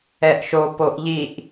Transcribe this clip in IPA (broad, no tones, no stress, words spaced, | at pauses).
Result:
ɛʔʃo poʔʎiʔ